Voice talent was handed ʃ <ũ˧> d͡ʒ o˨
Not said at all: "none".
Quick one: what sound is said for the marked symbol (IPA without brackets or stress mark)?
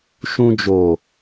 ũ˧